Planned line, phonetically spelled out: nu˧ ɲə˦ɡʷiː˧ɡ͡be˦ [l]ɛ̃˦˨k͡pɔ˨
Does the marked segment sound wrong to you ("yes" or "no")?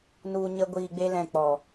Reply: no